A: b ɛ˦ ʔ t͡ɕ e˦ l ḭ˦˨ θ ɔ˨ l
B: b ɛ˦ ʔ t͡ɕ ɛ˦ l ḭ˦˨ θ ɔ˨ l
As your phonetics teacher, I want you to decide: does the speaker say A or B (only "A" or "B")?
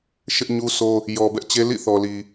A